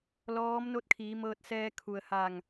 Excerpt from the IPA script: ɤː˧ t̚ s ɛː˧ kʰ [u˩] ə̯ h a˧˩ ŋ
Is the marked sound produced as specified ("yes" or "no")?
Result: yes